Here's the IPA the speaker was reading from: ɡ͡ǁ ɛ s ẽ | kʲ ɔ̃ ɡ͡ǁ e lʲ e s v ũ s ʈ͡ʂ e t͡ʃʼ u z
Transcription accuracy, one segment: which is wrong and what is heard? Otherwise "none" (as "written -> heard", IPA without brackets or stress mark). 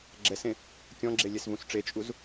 none